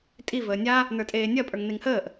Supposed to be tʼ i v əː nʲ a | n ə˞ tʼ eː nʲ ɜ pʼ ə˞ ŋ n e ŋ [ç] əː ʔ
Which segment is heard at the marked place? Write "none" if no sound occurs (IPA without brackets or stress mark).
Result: h